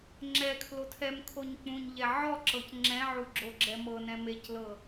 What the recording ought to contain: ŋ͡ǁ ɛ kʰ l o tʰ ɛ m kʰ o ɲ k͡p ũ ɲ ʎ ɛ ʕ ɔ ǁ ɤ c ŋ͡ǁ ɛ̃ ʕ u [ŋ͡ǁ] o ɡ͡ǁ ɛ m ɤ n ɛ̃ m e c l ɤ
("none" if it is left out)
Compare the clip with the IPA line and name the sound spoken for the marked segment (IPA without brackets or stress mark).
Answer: ɡ͡ǁ